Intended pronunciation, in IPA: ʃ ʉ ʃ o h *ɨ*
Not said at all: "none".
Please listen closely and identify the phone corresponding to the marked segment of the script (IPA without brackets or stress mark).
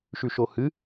ɨ